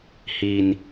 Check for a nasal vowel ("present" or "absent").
absent